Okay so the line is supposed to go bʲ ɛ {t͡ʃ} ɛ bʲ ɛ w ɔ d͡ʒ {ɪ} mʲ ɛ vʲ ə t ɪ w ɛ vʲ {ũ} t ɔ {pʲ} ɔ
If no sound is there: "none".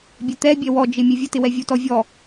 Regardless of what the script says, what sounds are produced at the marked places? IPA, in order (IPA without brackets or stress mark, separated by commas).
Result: t̪, ɪ, u, vʲ